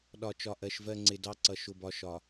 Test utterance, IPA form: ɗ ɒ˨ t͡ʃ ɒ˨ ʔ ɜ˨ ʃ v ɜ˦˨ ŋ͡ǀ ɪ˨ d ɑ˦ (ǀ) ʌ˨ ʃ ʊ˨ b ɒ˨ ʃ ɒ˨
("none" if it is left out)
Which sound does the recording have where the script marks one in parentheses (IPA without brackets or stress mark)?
ǀ